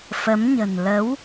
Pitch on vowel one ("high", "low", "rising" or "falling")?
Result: rising